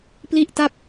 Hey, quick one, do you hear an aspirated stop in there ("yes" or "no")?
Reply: no